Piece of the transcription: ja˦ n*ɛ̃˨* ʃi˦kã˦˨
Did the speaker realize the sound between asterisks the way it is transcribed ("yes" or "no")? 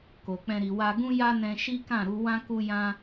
no